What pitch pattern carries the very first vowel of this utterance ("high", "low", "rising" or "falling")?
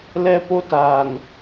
high